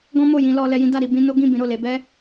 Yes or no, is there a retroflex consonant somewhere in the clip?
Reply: no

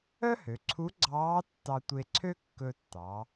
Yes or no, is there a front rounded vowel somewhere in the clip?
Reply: yes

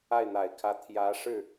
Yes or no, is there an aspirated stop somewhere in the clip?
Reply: yes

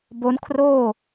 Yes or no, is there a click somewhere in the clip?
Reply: no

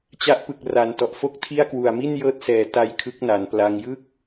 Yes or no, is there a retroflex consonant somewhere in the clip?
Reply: no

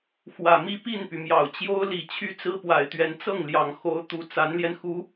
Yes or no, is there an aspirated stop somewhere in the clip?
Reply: yes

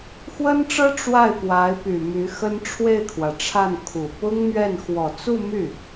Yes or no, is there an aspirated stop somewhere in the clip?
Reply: yes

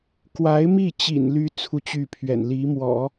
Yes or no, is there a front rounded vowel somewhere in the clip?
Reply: yes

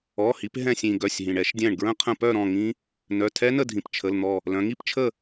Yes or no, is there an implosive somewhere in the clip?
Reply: no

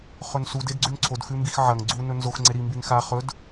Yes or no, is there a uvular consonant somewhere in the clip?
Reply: yes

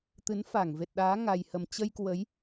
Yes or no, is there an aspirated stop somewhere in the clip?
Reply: no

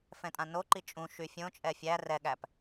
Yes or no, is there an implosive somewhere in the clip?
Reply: yes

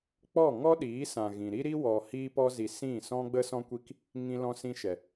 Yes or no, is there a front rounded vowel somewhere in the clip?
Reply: no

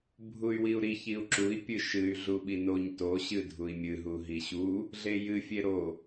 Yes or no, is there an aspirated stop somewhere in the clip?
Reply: no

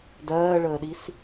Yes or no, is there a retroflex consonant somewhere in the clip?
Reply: yes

